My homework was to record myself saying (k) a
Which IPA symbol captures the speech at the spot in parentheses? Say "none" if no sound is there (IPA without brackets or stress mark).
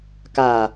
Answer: k